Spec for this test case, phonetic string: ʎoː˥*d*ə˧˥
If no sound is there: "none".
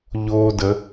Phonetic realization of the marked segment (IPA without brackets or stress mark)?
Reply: d